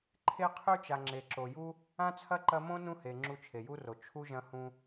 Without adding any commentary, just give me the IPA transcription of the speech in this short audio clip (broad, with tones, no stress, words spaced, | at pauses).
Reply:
ǃʰe˥qʰʉ˥t͡ʃa˨ ŋ͡ǁe˨ǁo˨ju˥ | ã˥t͡sʰɐ˥ ǃɐ˥ mõ˥nũ˦he˩ ŋ͡ǁu˦t͡ʃʰe˩ju˥ro˩ t͡ʃʰu˥ʒɐ̃˦hũ˦